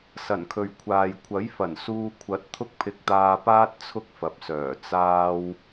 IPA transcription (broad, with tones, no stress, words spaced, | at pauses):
sɐ˨˩nkʰɵ˨ɥkʷʰaː˨j kʷʰɐ˨˥jfɐ˨˩n suː˧kʷʰɐ˨˥t̚ t̪ʰʊ˥k̚pʰɪ˧k̚t̪aː˧paː˥t̚ t͡sʰʊ˥k̚fɐ˨p̚sœː˨˩ t͡saː˧w